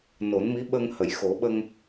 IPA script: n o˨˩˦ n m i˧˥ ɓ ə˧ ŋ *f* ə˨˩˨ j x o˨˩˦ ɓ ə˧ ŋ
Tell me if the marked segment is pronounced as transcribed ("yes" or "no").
no